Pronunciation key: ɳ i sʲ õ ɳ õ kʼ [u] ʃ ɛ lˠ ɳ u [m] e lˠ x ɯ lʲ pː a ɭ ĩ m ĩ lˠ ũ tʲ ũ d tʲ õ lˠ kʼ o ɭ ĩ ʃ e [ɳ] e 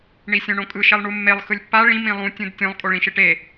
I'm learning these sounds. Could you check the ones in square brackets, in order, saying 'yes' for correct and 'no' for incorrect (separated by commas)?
no, no, no